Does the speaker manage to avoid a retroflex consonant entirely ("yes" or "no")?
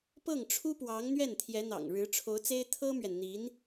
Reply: no